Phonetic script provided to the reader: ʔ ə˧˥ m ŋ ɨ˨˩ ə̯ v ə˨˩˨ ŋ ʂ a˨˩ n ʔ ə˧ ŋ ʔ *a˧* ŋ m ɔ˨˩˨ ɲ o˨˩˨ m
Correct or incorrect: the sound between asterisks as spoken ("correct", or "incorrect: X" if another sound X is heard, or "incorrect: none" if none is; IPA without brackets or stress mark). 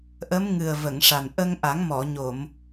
incorrect: a˨˩˦